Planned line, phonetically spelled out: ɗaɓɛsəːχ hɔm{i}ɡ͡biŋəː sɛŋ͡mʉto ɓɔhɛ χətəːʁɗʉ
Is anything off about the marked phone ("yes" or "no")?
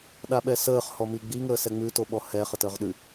no